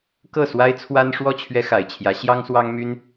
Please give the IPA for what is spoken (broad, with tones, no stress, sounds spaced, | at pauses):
k ɤ˥˩ s w a˥ ɪ̯ t͡sʰ w a˥ n ʂ w ɔ˥˩ t͡ɕʰ ɥ ɛ˥ x a˨˩ ɪ̯ t͡ɕʰ j ä˧˥ ɕ j ɑ˥ ŋ s w ɑ˥ ŋ m y˥ n